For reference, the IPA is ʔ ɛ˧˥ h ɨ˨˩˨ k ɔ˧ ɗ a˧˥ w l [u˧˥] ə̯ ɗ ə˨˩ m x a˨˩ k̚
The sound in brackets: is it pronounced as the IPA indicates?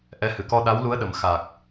yes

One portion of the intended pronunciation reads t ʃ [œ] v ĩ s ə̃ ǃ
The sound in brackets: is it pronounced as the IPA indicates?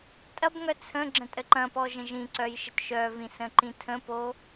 yes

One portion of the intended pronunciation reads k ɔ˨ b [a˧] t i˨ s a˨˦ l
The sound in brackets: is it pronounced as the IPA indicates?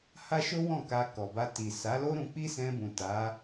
yes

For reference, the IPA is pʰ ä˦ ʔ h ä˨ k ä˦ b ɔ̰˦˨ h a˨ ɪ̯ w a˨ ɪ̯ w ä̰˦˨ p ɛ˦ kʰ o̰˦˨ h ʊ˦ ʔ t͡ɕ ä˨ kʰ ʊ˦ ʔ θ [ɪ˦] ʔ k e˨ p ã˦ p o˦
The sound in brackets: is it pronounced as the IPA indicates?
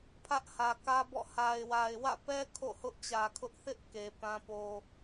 yes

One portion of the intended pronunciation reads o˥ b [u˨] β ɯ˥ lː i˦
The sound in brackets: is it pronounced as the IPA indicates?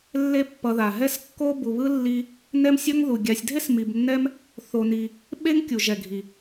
yes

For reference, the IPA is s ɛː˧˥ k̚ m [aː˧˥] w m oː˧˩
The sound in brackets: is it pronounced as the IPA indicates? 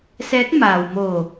no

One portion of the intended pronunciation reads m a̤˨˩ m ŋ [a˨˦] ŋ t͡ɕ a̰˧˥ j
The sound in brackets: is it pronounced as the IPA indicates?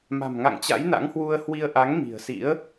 no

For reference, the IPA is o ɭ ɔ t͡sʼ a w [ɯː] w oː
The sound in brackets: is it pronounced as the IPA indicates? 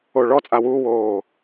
no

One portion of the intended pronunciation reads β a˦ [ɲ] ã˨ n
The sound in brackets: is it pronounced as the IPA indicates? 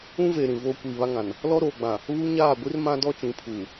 no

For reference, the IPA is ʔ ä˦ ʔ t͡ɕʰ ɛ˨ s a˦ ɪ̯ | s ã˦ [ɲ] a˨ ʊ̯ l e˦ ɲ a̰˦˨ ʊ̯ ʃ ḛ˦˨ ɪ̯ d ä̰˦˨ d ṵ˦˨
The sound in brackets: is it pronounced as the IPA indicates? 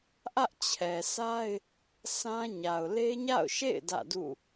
yes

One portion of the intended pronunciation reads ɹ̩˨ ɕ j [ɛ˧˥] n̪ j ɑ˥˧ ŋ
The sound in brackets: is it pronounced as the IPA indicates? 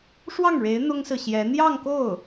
yes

